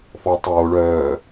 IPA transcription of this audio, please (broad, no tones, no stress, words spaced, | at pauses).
fɔ tˤoː ɭœː